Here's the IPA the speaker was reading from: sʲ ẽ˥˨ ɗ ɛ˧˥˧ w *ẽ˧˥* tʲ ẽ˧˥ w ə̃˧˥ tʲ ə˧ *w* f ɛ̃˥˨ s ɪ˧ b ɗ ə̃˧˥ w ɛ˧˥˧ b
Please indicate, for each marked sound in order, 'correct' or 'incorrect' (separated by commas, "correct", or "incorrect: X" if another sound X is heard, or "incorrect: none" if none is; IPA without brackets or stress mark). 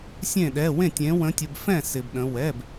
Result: incorrect: ẽ˥˨, incorrect: b